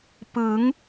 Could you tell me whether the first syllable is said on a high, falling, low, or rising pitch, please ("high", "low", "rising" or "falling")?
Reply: rising